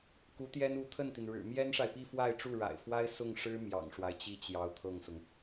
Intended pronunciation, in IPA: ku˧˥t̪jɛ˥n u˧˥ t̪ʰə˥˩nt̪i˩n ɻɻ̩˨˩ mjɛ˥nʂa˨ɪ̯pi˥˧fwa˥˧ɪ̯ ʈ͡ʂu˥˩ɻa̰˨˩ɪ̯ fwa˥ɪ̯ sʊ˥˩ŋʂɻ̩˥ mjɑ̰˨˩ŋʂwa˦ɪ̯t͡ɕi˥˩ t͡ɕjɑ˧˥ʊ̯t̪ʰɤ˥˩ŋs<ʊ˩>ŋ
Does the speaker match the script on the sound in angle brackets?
yes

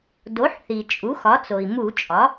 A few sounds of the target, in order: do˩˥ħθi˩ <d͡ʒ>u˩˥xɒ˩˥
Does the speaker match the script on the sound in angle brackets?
no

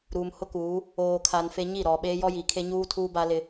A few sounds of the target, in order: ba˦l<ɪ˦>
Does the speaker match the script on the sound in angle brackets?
yes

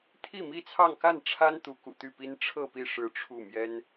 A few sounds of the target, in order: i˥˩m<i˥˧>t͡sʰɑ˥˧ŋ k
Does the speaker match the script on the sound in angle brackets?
no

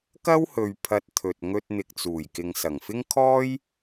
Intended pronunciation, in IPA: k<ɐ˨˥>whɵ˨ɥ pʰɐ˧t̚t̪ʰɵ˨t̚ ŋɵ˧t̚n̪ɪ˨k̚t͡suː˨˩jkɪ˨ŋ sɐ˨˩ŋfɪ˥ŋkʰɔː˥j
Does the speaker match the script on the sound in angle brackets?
no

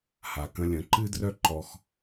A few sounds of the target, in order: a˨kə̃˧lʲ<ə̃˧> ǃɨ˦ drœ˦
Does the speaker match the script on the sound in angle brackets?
no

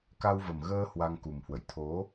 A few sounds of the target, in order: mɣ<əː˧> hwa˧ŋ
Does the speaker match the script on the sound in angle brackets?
yes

